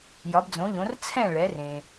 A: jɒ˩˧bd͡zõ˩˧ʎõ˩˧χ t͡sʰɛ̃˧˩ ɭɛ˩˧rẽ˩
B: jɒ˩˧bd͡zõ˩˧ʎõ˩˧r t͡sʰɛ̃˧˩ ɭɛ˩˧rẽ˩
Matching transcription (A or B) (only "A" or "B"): B